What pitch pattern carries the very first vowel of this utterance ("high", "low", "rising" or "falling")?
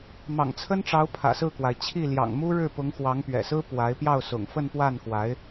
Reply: low